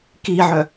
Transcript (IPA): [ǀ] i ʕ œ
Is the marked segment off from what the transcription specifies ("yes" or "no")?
yes